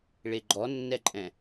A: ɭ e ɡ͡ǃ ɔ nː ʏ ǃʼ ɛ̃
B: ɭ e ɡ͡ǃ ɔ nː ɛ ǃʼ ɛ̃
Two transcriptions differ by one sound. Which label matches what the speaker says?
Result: B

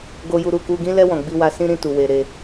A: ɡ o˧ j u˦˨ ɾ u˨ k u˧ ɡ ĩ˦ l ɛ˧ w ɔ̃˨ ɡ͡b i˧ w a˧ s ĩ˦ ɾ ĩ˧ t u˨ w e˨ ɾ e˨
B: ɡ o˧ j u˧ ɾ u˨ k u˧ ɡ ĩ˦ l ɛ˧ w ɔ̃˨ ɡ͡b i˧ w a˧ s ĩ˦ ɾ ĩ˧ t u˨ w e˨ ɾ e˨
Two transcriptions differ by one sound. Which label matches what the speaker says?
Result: B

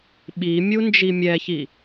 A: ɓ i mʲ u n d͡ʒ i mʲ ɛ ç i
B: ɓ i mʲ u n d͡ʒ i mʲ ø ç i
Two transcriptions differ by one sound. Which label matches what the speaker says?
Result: A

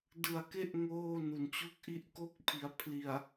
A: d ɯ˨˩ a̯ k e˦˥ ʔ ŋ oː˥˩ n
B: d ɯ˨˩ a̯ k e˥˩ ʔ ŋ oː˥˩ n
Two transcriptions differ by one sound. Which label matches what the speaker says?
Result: A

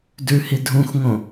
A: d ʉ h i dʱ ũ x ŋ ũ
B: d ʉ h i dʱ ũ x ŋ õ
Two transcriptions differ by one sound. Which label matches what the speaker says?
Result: B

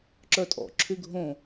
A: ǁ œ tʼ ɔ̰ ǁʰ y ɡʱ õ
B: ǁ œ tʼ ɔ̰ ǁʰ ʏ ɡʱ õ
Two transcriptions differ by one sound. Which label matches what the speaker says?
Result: A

